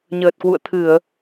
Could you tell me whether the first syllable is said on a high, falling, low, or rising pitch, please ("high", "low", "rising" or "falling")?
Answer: low